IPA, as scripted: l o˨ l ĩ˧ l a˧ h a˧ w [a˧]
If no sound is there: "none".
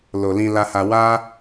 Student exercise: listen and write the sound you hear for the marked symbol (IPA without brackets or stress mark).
a˦